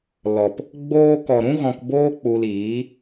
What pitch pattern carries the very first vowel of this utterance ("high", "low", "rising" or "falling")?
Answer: low